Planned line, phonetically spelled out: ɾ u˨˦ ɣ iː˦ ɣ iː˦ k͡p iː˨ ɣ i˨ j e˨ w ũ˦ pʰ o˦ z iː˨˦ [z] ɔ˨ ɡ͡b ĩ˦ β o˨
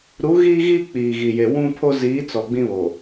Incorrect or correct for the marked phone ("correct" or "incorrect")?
incorrect